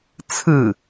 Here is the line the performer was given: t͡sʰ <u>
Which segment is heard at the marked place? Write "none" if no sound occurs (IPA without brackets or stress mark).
ɯ